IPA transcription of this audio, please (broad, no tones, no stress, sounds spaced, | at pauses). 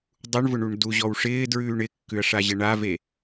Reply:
dˤ u ɳ v ʊ ɳ u ɳ d u ʑ ɔ w ʂ ɪː d ɹ ʉː ɳ ɪ kː ʉ ɐ̯ ʂ a ʑ ɛ ɳ a v e